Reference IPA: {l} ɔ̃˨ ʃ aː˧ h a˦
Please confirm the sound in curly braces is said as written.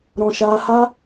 no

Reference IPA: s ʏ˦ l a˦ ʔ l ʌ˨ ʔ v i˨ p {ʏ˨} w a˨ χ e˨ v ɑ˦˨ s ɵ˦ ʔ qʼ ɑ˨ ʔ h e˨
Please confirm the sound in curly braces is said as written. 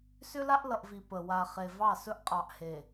no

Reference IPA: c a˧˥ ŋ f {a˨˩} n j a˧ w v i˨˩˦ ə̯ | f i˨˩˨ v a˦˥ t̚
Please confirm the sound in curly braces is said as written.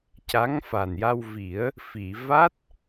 yes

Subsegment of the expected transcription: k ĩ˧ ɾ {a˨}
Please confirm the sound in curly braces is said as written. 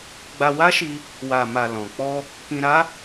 no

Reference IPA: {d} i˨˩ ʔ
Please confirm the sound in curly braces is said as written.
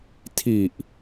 no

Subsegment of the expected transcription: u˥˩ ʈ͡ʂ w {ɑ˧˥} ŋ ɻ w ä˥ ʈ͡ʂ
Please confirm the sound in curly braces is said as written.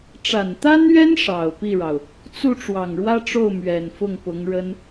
no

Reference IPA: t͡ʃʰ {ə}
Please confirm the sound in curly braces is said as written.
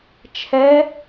no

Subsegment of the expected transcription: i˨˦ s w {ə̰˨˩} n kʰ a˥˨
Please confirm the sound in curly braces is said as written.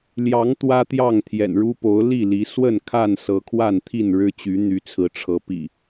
no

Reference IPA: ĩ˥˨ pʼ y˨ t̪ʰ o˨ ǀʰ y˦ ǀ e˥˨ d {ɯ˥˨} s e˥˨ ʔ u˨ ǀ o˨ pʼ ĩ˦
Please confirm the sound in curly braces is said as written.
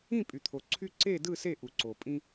yes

